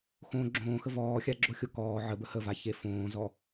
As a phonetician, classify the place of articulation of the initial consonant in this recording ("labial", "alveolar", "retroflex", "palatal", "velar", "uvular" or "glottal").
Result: velar